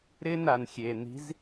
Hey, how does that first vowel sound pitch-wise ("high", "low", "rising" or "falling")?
high